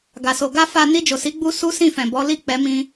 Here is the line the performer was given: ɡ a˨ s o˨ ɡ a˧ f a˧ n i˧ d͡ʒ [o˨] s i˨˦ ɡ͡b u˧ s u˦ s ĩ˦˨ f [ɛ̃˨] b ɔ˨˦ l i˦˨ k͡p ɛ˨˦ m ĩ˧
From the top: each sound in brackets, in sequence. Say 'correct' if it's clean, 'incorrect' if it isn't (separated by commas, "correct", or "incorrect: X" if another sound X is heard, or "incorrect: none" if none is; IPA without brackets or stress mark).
correct, correct